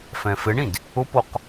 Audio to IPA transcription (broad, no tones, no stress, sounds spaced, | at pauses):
f ɛ̃ f ɪ ɳ ĩ d | ʊ p o q